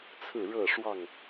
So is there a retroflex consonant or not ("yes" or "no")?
yes